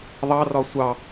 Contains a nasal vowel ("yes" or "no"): no